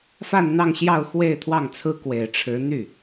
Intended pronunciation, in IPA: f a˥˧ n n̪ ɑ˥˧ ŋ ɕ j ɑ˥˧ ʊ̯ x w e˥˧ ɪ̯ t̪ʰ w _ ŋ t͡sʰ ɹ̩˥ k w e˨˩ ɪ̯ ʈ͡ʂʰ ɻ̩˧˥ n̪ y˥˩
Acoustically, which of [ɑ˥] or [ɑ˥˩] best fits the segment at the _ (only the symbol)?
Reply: ɑ˥˩